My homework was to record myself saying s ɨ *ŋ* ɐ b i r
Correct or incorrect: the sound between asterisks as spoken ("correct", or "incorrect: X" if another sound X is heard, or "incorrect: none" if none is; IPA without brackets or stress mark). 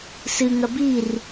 correct